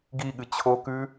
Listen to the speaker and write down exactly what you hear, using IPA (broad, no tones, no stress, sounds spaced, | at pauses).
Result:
ɡ i ɠ ɨ t͡ɕʰ o k ʉ